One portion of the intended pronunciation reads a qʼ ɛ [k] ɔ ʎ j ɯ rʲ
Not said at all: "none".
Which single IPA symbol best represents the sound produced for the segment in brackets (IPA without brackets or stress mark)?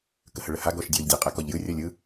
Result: k